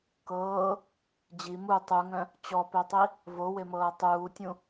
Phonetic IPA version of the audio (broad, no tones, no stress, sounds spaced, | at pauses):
k ɤː | d͡ʑ i m u tˤ u ŋ œ̃ | t͡ɕ ɔ p œ tˤ i | v o w e m ɤː tˤ uː tʲ ũ